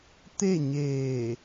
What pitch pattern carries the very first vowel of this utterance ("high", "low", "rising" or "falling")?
falling